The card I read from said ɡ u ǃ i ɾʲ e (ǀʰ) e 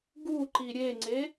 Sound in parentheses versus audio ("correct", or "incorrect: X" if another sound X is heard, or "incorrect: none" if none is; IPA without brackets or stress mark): incorrect: ŋ͡ǀ